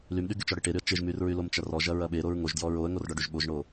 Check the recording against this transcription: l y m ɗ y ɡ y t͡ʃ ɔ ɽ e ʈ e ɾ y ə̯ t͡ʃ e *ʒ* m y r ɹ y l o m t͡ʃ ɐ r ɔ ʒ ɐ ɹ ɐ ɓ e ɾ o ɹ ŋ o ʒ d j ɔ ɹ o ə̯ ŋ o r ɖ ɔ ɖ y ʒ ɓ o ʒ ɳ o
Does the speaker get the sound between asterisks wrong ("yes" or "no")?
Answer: no